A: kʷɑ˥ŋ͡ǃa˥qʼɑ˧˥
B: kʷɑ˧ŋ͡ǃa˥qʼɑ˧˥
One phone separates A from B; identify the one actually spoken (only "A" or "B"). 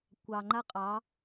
B